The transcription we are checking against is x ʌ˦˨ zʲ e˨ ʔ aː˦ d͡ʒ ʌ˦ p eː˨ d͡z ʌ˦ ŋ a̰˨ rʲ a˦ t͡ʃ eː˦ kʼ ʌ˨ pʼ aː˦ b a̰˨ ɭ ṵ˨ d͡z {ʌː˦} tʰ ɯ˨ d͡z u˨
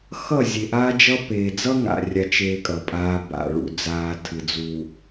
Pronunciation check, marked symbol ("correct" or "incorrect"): incorrect